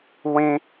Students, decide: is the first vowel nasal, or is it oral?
nasal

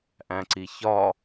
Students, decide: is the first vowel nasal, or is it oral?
nasal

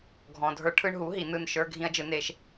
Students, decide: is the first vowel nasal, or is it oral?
nasal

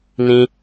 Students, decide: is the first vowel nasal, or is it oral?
nasal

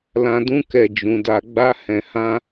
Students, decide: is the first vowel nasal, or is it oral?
nasal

